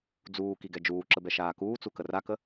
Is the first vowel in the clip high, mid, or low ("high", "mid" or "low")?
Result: high